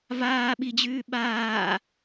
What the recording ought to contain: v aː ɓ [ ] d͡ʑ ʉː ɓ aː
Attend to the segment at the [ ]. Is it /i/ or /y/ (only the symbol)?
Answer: i